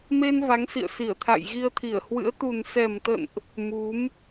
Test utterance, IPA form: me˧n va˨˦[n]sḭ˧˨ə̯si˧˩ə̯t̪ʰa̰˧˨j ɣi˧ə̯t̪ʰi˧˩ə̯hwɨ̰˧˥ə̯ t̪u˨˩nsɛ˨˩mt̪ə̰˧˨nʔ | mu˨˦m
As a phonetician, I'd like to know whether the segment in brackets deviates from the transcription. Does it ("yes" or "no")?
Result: yes